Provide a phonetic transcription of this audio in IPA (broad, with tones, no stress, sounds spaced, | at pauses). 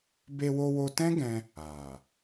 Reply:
b e˧ w o˧ w o˧ t ɛ̃˦ ɡ ɛ̃˧ | a˨